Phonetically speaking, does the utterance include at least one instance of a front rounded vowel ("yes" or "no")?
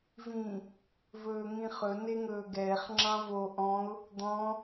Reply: no